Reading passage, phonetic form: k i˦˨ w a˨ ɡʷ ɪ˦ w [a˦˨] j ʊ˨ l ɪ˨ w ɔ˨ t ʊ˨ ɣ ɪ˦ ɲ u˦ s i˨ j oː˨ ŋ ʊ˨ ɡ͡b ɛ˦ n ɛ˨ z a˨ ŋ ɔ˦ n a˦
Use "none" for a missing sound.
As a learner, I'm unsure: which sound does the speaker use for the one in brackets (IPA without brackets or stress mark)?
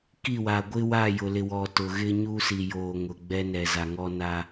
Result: a˦˨